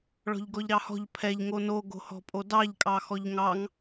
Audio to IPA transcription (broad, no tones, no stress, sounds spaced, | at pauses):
ɭ ɔ̤ ʎ ɡ ɔ ʎ ɾ ɑ h ɔ̤ ʎ pʰ ɛ ʎ ŋ o n o ɡ o̤ h ɔ̤ pʼ o d ɑ ʎ kʼ ɑ x ɔ ʎ ŋ ɑ ŋ